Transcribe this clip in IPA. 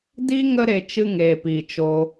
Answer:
d iː˦ ŋ ə˦ ɾ e˧ t͡ʃ ɨ˧ ŋ eː˨ p i˨ t͡ʃ o˧

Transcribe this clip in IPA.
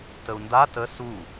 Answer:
t ə u̯ n d a t ə s u

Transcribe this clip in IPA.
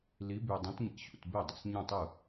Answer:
l i˨˥ b y˨˩ dˤ ẽ˨˥ t ɲ ḭ˧˩˧ ɕ ṵ˨˩ t b e˥˩ dˤ ḭ˨˩ s ɲ ũ˥˩ tˤ ɯ˥˩

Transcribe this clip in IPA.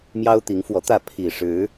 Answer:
m j ɑ˦ ʊ̯ t̪ i˨˦ ŋ f w ɔ˨˦ t̪ ä˥˨ pʰ i˨˩ ʂ ɻ̩˨˦

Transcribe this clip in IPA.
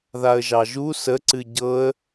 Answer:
ð a ə̯ ʒ ɑ ʒ u s ə ǀ ɨ ɟ ɤ ə̯

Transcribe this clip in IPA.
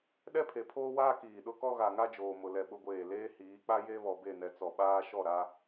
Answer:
ɗ ɛ˦ pʰ e˨ pʰ oː˦ w aː˦ k iː˨ ɗ ʊ˦ k ɔ˦ ɣ a˨ ŋ a˦ d͡ʒ oː˨ m ʊ˨ l ɛ˨ ɓ ʊ˦ ɡʷ eː˦˨ l eː˦ h iː˨˦ k͡p a˦ j e˦ β ɔ˨ b e˦˨ n ɛ˨ t͡s ɔ˨ ɓ aː˦ ʃ ɔ˦˨ ɾ a˦

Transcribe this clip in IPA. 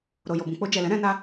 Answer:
ɾ o˨ j o˨ b ũ˨ k͡p o˧ d͡ʒ ɛ˨ l ɛ̃˨˦ ɾ ɛ̃˧ n a˧

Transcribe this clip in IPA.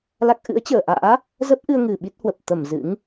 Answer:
l a˦˥ k̚ ʔ ɨ̰˧˥ ə̯ t͡ɕ əː˧˩ ʔ a̰ː˧˥ | z ə˦˥ p̚ ʔ ɨ˧ ə̯ ŋ ɨ˨˩ ɓ i˦˥ t̚ h w ə˨˩ p̚ t̪ ə˧˩ m z ɨ̰˧˥ ŋ

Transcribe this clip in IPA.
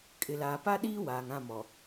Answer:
kʼ ɪ˨ l aː˨ p a˦ ɗ iː˦ w aː˨ ŋ ã˦˨ m ɔ˨

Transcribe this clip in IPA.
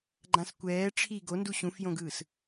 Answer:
ɡ͡ǃ ã s kʷ ɛː ʈ͡ʂʰ i ɡ o n d u ɕ ũ f j õ ɡ ɯː s

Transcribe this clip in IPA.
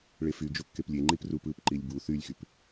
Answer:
ɭ e f y d͡ʒ o kː e p lʲ e ŋ͡ǃ i p r u p ɯ p ǃ i lʲ b u θ y lʲ x y p

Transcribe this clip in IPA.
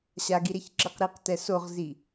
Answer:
ɕ a ɡ i ɾ e ç ǁ ɨ q ɾ i q t ɛ s o ʁ z i

